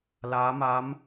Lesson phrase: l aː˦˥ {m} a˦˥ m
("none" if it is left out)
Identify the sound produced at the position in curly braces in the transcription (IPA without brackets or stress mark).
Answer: m